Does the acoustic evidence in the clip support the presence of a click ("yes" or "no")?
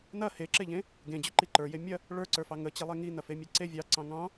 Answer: yes